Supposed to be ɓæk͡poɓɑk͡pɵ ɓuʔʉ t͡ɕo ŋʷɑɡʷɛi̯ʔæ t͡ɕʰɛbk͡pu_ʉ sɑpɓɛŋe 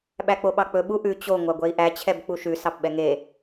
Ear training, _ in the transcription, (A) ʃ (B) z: A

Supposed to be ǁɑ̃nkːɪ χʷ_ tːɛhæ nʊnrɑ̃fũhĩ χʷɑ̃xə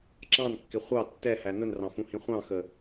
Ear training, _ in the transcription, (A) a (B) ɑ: B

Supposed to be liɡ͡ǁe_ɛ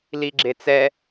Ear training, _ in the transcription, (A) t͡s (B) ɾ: A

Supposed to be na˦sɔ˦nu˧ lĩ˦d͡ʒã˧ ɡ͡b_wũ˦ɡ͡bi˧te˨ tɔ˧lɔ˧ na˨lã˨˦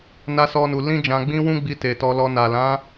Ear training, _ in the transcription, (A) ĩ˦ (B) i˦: A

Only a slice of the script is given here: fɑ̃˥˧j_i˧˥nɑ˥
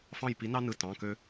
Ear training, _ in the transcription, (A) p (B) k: A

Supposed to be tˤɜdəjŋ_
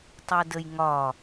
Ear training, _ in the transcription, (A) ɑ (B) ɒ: B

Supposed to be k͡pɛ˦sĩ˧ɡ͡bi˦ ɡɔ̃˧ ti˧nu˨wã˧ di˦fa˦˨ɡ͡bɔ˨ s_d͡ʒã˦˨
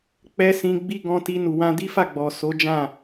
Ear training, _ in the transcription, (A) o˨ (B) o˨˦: B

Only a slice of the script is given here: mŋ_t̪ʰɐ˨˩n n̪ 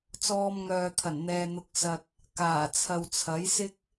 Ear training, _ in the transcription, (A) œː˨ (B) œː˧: A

